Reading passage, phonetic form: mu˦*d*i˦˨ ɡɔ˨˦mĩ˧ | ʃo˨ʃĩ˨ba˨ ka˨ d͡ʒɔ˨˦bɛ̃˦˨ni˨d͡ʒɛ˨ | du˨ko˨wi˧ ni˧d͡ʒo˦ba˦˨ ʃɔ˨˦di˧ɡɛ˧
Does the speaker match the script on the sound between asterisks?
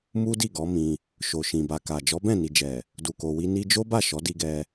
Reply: yes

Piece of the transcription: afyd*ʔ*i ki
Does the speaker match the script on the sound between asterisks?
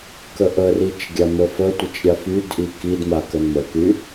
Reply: yes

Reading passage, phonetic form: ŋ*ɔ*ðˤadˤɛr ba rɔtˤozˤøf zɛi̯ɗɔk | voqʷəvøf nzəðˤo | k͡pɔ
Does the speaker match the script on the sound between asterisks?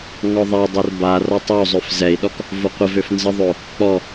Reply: yes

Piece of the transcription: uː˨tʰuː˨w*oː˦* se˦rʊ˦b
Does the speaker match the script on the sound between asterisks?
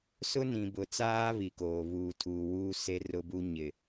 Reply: no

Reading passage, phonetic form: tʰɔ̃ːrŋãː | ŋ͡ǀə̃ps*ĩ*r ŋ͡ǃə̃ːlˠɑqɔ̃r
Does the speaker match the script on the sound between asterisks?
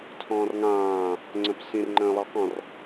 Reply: yes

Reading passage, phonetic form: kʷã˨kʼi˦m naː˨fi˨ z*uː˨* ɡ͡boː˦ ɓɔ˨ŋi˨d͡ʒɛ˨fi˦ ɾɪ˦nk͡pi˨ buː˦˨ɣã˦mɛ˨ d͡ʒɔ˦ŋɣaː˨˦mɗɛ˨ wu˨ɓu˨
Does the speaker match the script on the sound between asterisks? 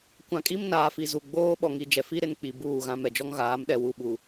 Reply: no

